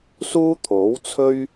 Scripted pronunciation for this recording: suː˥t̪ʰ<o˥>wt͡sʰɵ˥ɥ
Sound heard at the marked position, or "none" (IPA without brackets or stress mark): o˨˥